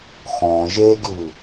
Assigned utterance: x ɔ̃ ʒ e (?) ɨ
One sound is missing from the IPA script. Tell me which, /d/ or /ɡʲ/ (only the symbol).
ɡʲ